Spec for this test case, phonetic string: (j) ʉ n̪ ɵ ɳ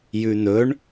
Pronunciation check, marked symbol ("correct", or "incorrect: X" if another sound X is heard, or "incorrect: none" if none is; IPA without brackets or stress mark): correct